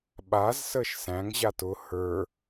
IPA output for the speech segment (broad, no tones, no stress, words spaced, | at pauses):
ɓazsəʃ sæ̃ŋʑa tʊ hə˞